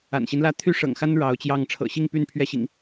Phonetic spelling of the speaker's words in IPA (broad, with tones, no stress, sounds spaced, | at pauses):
a̰˨˩ n ɕ i˦ n l ä˦ t̪ʰ y˦ ʂ ɤ̰˨˩ ŋ x a˦ n ɻ ɑ˨˦ ʊ̯ t͡ɕ j ɑ˥˨ ŋ ʈ͡ʂʰ ɤ̰˨˩ ɕ i˥˨ ŋ p y˥˨ n pʰ ɥ ɛ˥˨ ɕ ḭ˨˩ ŋ